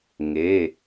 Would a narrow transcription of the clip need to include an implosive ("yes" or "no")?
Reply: no